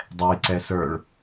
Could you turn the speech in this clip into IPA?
dˤ ɛ j ǀ ɛ s ə˞ ɭ

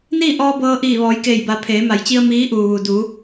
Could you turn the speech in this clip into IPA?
n iː˥˨ ʔ ɔː˧ b ɤː˧ ʔ iː˧˩ ʋ ɔː˩˧ j k eː˧˩ j b a˩˧ pʰ eː˩˧ m a˩˧ j t͡ɕ i˧ ə̯ m iː˧˥ ʔ uː˩ ʋ u˩ d u˩˧

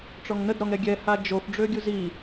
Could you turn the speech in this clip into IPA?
ʈ͡ʂ ɔ ŋ n ə d ɾ ɔ ŋ ɾ ɛ ɡʲ ɛ h a d͡ʒ o f ɖ͡ʐ ø ɡʲ u z i

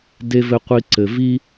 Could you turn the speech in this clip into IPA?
d e˨ v ɘ˨ qʷ i˨ ǀ ɘ˨ v i˦

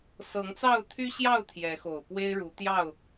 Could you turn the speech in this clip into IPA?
s ɤ˨˦ ŋ t͡s ɑ˥˨ ʊ̯ t̪ʰ y˦ ɕ j ɑ˥˨ ʊ̯ t̪ʰ j ɛ˨˦ x o˨˩ ʊ̯ p w e˦ ɪ̯ ɻ u˨˦ t̪ j ɑ˥˨ ʊ̯

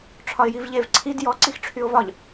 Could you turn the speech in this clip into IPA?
ʈ͡ʂʰ ɒ ɪ̯ j i v ʎ e v ǀʰ i d j ɔ ǀ i x ʈ͡ʂʰ y ʊ̯ v ɒ ʎ

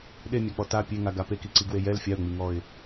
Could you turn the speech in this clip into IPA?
ɗ e mʲ a k͡p ɔ t a pʲ e ŋ a ɡ a p e k i ǀ i ɡ w e j ɛ l fʲ a ʊ̯ ŋ͡m i ŋ ɔ ɪ̯

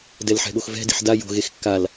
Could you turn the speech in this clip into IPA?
d ɛ l ħ ɛ̤ ɠ o x v ɛ̤ d i̤ ħ d a j o̤ ɣ e x kː a l

